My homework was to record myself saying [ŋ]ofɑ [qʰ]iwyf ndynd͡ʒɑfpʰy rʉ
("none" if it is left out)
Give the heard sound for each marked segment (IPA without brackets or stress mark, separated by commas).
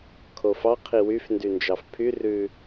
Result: kʰ, qʰ